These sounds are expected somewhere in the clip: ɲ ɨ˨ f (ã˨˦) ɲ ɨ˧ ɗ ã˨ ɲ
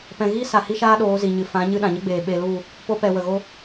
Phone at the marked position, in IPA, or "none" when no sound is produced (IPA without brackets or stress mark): ã˨˦